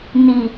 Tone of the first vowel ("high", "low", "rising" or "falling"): low